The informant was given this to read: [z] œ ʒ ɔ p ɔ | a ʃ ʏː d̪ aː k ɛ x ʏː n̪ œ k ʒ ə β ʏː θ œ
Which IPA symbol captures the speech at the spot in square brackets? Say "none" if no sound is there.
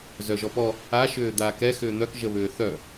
z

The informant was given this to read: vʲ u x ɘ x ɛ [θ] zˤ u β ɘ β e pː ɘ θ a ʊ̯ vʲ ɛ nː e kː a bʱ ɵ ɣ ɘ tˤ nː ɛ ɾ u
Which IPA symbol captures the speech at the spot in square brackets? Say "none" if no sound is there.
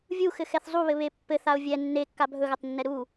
θ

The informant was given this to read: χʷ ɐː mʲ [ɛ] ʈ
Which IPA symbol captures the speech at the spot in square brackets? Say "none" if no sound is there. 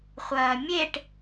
e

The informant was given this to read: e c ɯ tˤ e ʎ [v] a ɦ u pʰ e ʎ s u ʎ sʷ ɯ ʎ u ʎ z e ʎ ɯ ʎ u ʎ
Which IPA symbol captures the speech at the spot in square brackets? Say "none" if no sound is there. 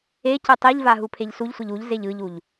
v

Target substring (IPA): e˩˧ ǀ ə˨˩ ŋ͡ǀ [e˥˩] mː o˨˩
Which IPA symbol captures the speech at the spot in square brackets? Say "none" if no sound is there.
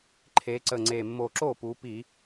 e˨˩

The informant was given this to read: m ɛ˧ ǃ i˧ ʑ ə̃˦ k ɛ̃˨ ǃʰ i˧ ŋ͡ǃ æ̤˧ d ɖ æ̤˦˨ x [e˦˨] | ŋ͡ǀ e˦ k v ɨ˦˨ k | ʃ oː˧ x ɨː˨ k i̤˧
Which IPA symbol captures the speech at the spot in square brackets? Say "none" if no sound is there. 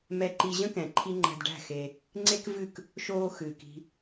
e˧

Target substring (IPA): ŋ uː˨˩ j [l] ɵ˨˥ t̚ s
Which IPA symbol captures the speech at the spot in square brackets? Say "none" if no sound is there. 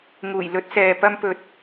l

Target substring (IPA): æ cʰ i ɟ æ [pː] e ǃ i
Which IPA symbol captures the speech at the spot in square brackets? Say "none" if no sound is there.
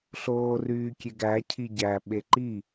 ɓ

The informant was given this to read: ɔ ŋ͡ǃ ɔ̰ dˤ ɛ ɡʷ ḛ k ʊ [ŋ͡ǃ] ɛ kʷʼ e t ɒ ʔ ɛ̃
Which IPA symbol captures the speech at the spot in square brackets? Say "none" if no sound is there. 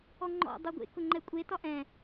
ŋ͡ǃ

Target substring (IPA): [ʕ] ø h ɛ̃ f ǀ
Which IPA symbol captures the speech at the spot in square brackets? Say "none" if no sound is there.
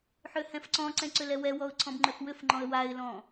ħ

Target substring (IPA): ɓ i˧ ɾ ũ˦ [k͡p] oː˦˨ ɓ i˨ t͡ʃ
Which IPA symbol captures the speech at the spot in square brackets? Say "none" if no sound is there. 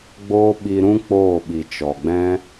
k͡p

